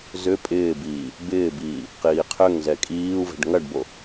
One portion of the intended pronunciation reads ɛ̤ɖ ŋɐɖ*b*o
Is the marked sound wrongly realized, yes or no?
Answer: no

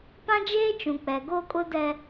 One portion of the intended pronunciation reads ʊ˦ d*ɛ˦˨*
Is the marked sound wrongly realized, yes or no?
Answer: yes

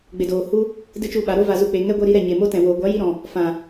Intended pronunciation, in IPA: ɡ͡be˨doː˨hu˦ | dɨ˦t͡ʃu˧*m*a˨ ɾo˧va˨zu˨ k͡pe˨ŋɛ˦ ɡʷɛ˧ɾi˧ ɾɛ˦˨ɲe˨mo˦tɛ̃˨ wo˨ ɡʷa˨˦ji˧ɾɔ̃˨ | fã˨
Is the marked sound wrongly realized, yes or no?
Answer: yes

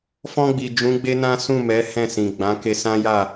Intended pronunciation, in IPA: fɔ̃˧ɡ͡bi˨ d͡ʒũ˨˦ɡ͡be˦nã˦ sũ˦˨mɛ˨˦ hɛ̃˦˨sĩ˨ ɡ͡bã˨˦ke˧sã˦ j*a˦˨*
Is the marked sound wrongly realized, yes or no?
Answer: no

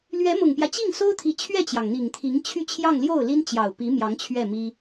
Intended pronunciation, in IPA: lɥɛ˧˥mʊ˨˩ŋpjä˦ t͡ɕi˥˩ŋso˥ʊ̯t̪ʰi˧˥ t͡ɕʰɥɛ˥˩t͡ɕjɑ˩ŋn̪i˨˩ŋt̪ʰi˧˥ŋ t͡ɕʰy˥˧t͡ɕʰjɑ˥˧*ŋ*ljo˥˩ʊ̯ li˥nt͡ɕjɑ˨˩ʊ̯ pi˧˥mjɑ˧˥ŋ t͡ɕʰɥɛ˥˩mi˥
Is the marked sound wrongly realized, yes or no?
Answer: no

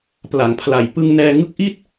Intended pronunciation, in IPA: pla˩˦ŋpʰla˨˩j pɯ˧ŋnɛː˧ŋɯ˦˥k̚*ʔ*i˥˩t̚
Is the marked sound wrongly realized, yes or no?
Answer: no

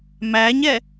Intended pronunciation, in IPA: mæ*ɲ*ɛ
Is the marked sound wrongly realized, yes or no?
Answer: no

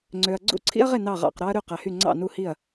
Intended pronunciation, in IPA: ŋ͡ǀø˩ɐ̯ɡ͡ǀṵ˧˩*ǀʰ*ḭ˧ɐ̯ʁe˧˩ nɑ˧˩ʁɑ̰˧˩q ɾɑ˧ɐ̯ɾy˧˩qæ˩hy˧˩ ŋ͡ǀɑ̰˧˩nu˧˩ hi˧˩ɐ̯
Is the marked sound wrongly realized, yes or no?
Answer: no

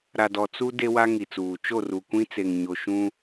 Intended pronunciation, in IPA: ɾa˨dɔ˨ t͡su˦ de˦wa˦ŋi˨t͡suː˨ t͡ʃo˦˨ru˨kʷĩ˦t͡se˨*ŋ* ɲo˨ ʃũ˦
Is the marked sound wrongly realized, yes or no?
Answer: no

